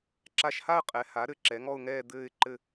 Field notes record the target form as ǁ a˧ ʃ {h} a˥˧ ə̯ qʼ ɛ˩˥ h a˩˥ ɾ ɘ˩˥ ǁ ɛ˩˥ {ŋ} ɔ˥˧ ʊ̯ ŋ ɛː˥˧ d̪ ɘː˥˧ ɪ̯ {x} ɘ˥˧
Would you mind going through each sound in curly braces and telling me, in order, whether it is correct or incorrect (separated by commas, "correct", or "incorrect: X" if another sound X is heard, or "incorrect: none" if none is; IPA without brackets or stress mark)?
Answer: correct, correct, incorrect: ǃ